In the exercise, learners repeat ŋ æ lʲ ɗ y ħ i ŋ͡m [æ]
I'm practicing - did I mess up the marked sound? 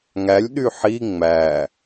no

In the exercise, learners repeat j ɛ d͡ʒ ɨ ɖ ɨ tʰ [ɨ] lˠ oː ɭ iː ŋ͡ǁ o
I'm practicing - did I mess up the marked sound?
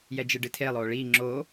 yes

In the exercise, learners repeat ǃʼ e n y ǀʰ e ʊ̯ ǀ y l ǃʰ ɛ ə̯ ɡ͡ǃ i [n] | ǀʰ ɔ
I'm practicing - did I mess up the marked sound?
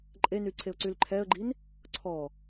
no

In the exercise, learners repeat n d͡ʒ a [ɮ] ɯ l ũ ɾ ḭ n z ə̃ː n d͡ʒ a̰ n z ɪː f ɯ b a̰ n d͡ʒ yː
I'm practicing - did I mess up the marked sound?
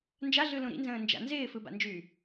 no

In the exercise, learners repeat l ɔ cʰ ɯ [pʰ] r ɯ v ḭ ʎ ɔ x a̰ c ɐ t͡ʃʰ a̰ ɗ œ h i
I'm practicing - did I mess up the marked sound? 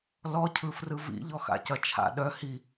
yes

